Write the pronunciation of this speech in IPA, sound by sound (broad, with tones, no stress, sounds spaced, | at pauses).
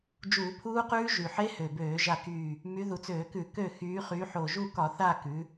d͡ʒ uː˧˩˧ pʰ uː˦˥ q ʉː˦˥ ʒ y˨˩ ħ e˦˥ h ø˨˩ b øː˧˩˧ ʒ a˦˨ k yː˦˨ | m y˨˦ ð u˨˩ t͡s øː˧˩˧ k ʉ˧˩˧ k ø˦˨ x yː˨˦ χ y˨˦ ħ o˨˩ ʒ u˦˨ k ɒ˧˩˧ θ a˦˨ k ʉ˨˦